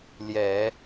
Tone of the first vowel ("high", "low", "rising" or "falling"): low